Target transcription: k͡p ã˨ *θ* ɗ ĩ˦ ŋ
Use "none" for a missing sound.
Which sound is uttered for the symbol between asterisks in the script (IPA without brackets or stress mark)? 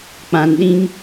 n